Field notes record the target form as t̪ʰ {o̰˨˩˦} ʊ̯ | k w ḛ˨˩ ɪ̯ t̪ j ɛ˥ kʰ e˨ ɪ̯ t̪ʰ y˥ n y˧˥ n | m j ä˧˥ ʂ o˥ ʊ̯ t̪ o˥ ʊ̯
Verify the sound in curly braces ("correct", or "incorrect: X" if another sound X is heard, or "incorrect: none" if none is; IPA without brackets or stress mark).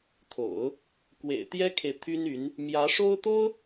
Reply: correct